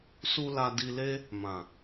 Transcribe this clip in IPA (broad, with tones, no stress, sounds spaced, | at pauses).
s u˧ l a˧ d i˧ l e˦ | m ã˨